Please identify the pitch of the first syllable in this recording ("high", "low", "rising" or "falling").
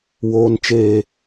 high